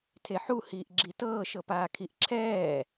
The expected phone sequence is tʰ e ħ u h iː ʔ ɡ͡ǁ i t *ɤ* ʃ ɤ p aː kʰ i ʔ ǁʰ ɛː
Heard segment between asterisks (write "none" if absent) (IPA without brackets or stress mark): ɤː